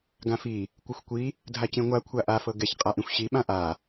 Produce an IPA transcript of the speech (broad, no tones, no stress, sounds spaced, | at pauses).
ɡ ã f i | kʷ ɯ xʷ kʷ i | dʱ a c ĩ ŋʷ a kʷʰ a ʔ a f ɤ ɡ ɛ ç qʼ a ʔ ĩ xʷ ɕ i ɓ ã ʔ a